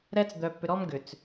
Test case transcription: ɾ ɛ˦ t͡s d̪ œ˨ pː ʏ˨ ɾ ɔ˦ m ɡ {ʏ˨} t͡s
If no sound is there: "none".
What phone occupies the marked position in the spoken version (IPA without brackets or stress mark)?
ʏ˨